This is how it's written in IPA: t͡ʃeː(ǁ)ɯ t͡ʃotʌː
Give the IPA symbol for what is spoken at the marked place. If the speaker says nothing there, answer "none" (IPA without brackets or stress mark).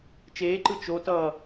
ǃ